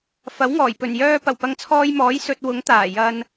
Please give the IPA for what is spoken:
f ɐ˨˥ w ŋ ɔː˨˩ j p ɵ˨˩ n j œː˧ p ɐ˨˩ w p ɐ˨˧ ŋ t͡sʰ ɔː˧ j m ɔː˨˥ j s ɵ˧ t̚ w ʊ˨˥ ŋ t̪ aː˨˩ j ɐ˧ n

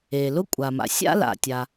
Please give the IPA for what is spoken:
eː˩ l ʊ˥ kʷʼ a˩ m a̰˩ sʲ a̰˥ l a̰˩ tʲ a˩

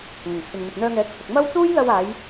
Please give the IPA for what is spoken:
ŋ ɐ˨˩ ŋ t͡sʰ ɪ˨ ŋ n̪ ʊ˨ k̚ n̪ œː˧ ŋ ɛː˨˥ k̚ t͡sʰ ʊ˨ k̚ m ɐ˥ w t͡s uː˥ j l ɐ˧ w aː˨˧ j

